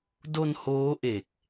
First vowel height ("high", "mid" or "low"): mid